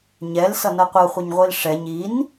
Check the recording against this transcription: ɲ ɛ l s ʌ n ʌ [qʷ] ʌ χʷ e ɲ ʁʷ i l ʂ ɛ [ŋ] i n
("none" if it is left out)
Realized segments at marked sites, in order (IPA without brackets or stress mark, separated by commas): qʷ, ɲ